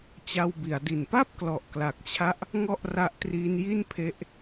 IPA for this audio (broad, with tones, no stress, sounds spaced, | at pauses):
t͡ɕ a˧ w b i˩˦ a̯ d i˨˩ n p a˥˩ p̚ k l ɔ˨˩ ʔ k l a˨˩ k̚ t͡ɕʰ a˦˥ ʔ | ŋ ɔ˥˩ ʔ r a˦˥ ʔ t r iː˦˥ n j i˥˩ n pʰ e˦˥ ʔ